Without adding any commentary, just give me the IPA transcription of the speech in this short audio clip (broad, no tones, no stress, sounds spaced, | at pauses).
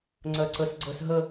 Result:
ŋ͡ǀ ɜ ǀ ə s ɡ͡ǀ ə s ɦ ə